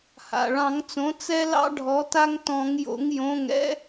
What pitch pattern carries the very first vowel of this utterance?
low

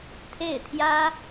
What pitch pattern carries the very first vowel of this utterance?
falling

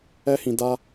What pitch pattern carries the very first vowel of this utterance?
high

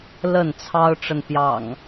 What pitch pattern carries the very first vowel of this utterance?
falling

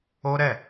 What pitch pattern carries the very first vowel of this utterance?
high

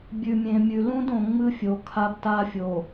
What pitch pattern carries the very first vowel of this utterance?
low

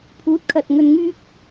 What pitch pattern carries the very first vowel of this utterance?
rising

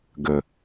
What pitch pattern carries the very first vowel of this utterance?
low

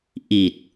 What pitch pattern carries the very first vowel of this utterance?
low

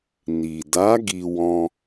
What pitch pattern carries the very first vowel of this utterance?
low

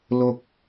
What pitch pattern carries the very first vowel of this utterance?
low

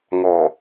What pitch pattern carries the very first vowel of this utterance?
low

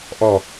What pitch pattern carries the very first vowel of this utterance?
falling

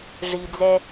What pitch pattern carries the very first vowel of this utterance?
low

